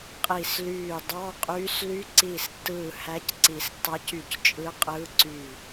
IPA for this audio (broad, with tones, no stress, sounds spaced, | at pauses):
qʼ i˧˩ s l yː˧˩ dˤ ɑ˧˥˧ qʼ yː˧˥ s l y˧˥ ǀ iː˧˩ s tː ɯː˧˩ h æ˧˥ c ǀ i˨˩˦ s tː ɑ˧˥ c y˧˩ c t͡ʃʼ ɯ˧˥ qʼ ɯː˧˥ ǀ yː˧˩